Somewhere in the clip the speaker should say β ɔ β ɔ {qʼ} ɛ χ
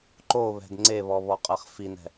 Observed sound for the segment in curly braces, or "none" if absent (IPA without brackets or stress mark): qʼ